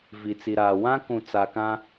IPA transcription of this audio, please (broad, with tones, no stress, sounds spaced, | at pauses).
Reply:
v i˨ t͡s i˨ ɾ aː˨ w ã˦ k ũ˨ t͡s a˨ k ã˦